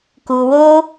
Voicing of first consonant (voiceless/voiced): voiceless